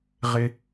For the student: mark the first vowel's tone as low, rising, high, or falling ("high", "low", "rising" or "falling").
high